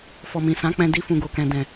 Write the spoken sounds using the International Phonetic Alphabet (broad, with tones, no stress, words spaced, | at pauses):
fɔ˨mĩ˨sã˨˦k͡pɛ̃˧ di˧fũ˨ɡo˨kɛ̃˨ dɛ̃˨